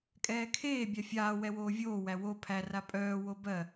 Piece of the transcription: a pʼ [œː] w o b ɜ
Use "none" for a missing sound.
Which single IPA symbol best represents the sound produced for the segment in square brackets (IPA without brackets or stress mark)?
œː